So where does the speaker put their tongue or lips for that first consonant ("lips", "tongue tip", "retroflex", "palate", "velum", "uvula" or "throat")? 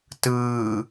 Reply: tongue tip